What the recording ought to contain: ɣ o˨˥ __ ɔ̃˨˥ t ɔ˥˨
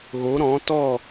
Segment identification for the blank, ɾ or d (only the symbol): ɾ